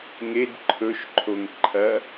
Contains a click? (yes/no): yes